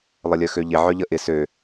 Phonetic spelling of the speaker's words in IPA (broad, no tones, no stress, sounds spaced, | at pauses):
lˠ ə lʲ œ x ø ʎ ɪ ʕ œ ʎ ə ʔ ɪ s ø